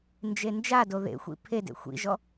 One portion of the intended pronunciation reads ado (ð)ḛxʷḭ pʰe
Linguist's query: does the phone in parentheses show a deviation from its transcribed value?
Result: no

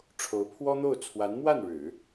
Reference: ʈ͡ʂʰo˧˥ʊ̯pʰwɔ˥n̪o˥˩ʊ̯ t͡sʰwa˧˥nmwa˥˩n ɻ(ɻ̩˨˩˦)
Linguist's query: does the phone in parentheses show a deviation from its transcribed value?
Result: no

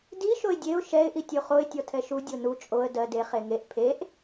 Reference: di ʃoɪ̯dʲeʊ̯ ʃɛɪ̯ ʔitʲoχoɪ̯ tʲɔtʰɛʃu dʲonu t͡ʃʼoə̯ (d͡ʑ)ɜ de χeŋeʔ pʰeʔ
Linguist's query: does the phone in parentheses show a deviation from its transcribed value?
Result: yes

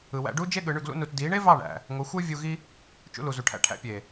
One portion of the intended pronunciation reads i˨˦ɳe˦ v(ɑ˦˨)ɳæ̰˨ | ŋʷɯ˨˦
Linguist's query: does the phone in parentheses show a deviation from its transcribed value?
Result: no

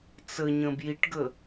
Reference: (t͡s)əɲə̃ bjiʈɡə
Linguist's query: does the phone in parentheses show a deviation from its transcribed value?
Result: no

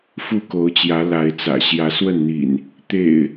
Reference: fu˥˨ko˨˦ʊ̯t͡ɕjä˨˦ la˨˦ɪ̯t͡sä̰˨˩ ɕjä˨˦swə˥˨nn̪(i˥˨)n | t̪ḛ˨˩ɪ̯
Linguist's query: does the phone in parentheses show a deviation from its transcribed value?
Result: yes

